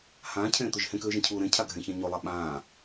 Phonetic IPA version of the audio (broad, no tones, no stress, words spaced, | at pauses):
hãːcʰẽːt̪ɵʒ hẽkøːʒẽcʰuː ɾẽcʰaɡʱẽçã ɲolˠa ɓãː